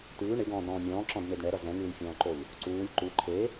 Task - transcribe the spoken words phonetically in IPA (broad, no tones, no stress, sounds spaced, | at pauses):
t ʉː ɳ ɪ ɡ ɔ̃ː d ɾ ɔ̃ː mʲ ɔ̃ː ǁ ɔ̃ d n̪ e d ɳ ɛ ɾ ʌ z ɛ̃ ŋ ɯː lʲ fʲ ɔ̃ː ǃ o lʲ | ǀ uː lʲ ǃ u ǃʰ e